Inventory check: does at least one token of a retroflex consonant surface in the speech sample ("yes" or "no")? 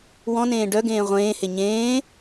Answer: yes